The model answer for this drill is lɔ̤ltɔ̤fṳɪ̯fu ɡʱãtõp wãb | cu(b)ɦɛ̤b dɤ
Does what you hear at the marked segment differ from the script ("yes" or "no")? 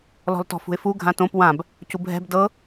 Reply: no